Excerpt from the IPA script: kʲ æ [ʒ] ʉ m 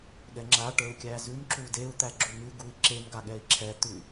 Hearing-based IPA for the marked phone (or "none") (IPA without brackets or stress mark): z